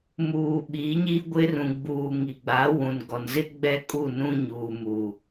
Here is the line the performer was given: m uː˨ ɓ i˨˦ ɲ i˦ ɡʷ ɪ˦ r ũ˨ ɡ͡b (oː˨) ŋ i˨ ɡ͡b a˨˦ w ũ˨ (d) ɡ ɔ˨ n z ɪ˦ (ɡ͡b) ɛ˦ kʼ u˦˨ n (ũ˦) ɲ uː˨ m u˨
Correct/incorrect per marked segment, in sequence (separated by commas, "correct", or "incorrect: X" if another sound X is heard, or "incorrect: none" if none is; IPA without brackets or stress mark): incorrect: uː˨, incorrect: n, correct, correct